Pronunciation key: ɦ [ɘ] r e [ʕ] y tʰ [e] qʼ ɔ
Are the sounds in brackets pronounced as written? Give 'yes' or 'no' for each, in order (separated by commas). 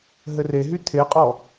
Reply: yes, no, yes